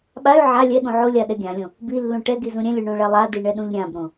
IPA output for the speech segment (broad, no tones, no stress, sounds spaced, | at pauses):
ɓ a y̯ ʕ a lʲ ɛ ɠ ũ ʕ o lʲ a ɗ ɛ ɡʲ ã lʲ õ | b i lː ũ ʈ ɛ ɡ i z ũ ɾʲ ɛ̃ lʲ u ɳ õ ɭ ɛ lˠ a d i ɳ ɛ ɗ ũ ʎ ɾʲ ã b ɾ õ